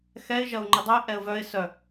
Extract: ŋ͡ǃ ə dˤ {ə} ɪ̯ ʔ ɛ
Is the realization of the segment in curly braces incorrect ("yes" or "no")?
no